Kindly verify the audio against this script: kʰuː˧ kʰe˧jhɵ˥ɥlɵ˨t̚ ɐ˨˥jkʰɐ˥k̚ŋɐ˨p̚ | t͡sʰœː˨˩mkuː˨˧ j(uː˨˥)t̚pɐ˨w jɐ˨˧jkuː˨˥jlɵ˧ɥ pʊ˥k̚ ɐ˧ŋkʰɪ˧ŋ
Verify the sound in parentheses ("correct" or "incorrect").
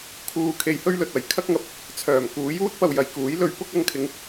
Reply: incorrect